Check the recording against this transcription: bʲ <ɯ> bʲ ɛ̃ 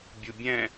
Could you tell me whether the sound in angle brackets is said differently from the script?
yes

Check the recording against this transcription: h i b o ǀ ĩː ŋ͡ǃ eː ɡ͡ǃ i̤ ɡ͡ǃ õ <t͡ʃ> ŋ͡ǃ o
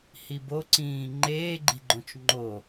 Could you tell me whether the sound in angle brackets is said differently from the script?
no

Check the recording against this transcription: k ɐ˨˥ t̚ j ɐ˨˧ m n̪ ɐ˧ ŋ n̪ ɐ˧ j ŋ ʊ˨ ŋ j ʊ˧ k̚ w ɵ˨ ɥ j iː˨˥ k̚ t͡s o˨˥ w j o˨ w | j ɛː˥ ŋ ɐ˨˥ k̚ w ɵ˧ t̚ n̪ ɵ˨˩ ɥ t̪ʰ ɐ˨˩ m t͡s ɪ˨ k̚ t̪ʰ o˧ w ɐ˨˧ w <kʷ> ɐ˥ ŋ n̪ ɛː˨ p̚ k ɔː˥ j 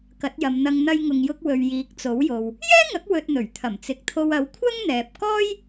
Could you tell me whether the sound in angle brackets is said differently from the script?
yes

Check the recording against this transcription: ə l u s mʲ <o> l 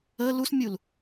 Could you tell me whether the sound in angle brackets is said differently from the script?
yes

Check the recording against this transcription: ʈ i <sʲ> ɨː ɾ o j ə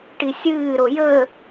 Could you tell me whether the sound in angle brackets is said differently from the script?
no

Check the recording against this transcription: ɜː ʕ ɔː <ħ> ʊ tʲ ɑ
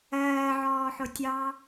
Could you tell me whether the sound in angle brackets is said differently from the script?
no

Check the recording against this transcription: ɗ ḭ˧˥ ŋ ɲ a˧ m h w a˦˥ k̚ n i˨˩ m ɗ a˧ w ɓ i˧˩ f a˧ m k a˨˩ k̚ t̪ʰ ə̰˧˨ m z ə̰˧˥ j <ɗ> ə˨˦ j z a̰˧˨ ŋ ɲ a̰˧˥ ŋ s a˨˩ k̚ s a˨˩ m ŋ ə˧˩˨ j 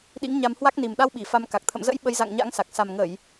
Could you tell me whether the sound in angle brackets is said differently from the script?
yes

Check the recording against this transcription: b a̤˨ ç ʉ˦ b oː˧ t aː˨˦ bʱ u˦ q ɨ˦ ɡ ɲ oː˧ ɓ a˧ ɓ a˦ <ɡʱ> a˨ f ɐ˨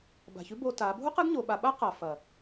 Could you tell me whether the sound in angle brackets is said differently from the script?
yes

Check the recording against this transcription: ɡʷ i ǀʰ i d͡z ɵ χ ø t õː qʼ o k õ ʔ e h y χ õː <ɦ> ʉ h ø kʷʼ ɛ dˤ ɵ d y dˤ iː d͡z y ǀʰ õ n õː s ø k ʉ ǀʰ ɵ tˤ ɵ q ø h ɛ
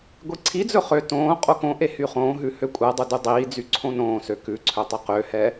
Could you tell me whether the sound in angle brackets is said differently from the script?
no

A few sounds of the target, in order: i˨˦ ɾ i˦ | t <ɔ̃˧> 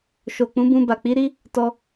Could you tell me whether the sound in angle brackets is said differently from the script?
yes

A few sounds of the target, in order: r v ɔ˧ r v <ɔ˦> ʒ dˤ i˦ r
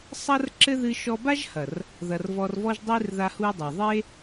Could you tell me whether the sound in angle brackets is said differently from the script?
no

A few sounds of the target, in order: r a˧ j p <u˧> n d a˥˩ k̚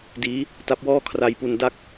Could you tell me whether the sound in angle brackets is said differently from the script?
no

